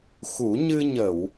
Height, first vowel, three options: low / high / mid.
high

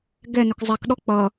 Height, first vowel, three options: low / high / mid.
mid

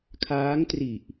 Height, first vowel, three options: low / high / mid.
low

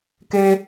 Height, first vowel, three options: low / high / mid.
mid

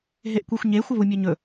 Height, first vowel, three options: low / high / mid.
mid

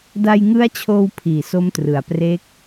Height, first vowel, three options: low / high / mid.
low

